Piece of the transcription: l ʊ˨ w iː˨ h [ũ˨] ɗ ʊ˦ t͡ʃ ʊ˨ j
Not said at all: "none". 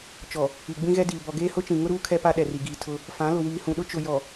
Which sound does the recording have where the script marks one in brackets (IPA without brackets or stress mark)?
ũ˨